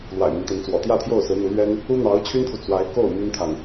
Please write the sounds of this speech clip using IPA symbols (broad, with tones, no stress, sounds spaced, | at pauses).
l w a̰˨˩ ɪ̯ m i˦ ŋ t̪ ə˧˥ n t͡s w ɔ̰˨˩ t̪ j ä˥˧ t̪ʰ j o˥˩ ʊ̯ s ɹ̩˧˥ n̪ u˧˥ l ɥ ɛ˥ n | u˥ n̪ ɑ˧˥ ʊ̯ t͡ɕʰ y˥ n t̪ʰ u˨ t͡s w a˧˥ ɪ̯ k o˥˩ ʊ̯ m y˥ n t̪ʰ a˨ n